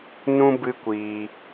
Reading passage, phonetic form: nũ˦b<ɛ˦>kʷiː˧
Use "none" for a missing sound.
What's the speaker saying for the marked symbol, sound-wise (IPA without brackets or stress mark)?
ɨ˦